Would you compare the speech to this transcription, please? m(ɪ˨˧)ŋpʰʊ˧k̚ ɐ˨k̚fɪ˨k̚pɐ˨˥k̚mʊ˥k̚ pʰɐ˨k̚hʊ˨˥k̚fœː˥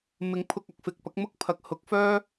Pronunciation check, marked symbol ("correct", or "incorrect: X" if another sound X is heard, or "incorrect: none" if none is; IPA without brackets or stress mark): incorrect: ɪ˨˥